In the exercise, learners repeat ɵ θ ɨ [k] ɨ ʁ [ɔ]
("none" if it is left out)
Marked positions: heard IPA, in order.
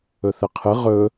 qʰ, ɵ

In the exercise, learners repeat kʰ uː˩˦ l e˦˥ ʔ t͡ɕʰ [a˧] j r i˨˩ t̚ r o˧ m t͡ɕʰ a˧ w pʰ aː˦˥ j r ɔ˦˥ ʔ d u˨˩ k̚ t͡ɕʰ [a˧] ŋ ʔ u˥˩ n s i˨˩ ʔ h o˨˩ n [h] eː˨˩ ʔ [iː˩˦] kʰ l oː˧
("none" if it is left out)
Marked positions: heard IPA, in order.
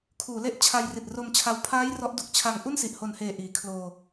a˧, a˧, h, iː˩˦

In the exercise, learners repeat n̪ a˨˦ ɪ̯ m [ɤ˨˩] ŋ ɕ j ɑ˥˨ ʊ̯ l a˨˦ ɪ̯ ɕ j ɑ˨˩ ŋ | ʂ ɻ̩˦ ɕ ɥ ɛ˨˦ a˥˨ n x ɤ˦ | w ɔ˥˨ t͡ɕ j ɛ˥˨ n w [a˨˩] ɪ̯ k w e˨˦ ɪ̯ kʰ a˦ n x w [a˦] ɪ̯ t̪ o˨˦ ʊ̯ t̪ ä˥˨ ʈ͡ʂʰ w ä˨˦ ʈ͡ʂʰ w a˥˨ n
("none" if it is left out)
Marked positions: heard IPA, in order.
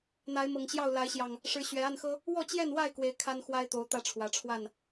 ɤ˨˩, a˥˨, a˦

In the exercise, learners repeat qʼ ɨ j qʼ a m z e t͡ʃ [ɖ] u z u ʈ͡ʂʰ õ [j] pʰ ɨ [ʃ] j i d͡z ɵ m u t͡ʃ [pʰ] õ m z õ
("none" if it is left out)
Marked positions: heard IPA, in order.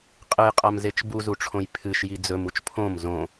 b, j, ʃ, pʰ

